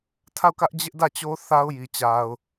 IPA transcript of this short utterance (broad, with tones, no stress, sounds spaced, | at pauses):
tʰ a˦˨ ʊ̯ k ä˦ ʔ d͡ʑ ɪ˦ ʔ d ä˦˨ t͡ɕ o˦ θ a˦ ʊ̯ j i˨ t͡ɕ a˨ ʊ̯